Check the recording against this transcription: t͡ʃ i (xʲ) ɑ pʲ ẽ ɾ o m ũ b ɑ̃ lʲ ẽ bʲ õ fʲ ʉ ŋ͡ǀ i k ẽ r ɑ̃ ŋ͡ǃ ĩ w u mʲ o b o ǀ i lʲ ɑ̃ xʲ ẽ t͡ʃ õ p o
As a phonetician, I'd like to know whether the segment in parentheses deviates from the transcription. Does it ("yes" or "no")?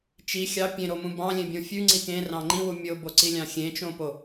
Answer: no